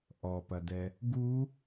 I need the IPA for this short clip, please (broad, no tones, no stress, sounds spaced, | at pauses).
ʔ ɔ p ɐ d ɛ | ɡ u